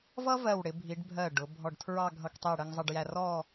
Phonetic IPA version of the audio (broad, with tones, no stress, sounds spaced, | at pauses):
v ʌ˥ v ɜ˧˩ w ɽ ɪ˩˧ bʱ i˩˧ ɖ bʱ ɜ˧˩ ɖ ʊ˩˧ bʱ ɔ˧˩ ɖ tʰ ɹ ɑ˥˧ ɡʱ ʌ˧ k tˤ i˧˩ ɽ ə˧ ŋ zˤ ʌ˧ ɖ j æ˧ r ɔ˥˧